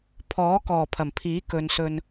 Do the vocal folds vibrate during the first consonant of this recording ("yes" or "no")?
no